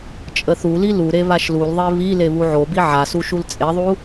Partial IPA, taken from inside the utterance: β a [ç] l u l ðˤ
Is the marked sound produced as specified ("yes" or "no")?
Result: no